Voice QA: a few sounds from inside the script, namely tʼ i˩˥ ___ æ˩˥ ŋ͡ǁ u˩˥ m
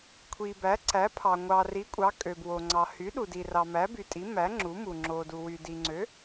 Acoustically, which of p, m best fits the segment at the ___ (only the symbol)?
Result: m